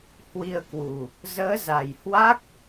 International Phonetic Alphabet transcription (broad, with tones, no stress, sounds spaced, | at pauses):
h w i˧ ə̯ k w u˨˩ | z əː˨˦ z a˨˩ j h w a˦˥ k̚